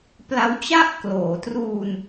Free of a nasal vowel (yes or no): yes